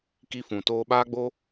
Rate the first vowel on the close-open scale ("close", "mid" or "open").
close